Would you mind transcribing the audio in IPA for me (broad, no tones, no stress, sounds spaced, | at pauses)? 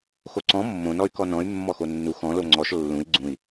x o ǀ ɔ̃ mː õ n ɔ y̯ k ɔ n ɔ̃ y̯ mː ɔ x o nː u x ɔ̃ l o ŋ͡ǀ ɔ ʃ lː ũ i̯ ɡ͡ǀ ũ i̯